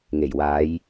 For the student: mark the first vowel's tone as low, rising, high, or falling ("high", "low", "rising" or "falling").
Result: low